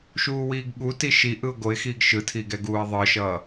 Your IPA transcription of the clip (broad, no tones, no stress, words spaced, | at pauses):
ʃuːwiːɡɠuti ʃi ʔɯʊ̯ɡoɪ̯xiːɡ ʃɯtʰi ɡɛɡuːɪ̯ðˤɯʃʌː